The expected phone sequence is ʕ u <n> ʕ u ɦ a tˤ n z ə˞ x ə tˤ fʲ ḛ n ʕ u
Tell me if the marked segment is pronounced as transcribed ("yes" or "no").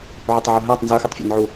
no